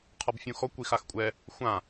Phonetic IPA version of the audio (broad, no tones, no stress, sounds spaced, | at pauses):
qʰ ɔ b fʲ ũ x ɔ kʷ i x a x kʷʼ ɛ | xʷ ã